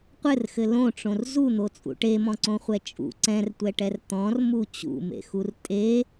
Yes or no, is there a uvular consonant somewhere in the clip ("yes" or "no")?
yes